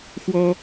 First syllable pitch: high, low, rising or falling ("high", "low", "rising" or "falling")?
high